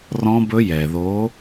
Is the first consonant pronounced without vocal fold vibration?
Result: no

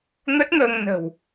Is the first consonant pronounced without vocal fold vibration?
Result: no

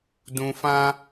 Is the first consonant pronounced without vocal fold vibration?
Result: no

